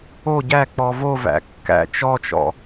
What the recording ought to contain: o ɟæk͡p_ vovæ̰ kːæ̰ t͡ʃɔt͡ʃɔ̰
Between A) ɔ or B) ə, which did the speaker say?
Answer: A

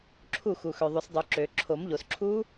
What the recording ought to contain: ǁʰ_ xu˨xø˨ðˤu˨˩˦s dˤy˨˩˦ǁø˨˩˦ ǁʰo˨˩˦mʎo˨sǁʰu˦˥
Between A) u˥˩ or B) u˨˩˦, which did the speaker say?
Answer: A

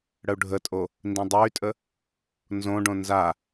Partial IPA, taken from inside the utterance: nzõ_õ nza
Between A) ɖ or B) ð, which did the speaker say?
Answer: A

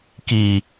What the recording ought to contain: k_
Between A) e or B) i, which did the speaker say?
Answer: B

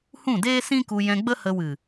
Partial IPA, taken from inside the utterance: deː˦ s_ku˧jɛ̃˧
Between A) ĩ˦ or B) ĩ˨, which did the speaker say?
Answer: A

